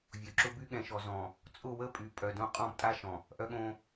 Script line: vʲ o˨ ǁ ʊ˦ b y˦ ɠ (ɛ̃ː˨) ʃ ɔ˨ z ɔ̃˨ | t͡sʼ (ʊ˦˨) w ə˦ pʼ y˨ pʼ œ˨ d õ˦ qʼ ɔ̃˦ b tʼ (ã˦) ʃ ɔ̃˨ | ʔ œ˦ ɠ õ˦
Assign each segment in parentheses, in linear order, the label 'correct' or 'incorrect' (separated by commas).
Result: incorrect, correct, incorrect